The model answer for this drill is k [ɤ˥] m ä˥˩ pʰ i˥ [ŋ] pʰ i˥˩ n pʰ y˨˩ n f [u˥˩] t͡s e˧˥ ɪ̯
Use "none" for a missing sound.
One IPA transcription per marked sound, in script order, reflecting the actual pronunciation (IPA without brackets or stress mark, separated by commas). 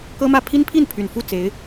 ɤ˥, n, u˥˩